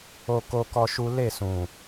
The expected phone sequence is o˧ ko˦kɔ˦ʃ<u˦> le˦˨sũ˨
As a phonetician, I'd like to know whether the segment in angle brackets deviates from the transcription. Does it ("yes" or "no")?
no